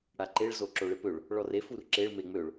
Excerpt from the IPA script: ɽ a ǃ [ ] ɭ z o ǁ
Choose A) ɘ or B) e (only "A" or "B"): B